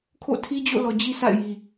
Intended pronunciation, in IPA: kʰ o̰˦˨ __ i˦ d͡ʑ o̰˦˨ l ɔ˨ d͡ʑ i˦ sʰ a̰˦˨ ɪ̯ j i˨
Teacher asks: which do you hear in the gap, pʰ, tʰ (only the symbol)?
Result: tʰ